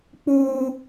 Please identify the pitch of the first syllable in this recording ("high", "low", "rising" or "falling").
high